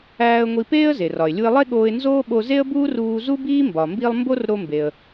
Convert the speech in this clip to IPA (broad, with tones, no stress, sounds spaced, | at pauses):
æː˧ ə̯ ŋʷ i˧ p eː˥ ə̯ z e˩ r ɒ˩ ɪ̯ lʲ u˧ ɪ̯ lˠ e˥ ɠ oː˧ ɪ̯ n z oː˥ ɓ o˧ z e˥ ə̯ b uː˥ r uː˧ z u˥ b iː˥ m b ɒ˩ m b i˧ lˠ m b o˥ r ɾ o˧ m b e˩ ə̯